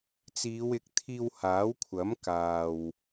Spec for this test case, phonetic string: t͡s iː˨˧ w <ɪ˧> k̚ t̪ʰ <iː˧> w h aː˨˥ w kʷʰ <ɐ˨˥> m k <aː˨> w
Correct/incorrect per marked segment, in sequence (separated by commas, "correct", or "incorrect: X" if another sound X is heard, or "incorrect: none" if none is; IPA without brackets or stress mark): incorrect: ɪ˨˥, correct, correct, correct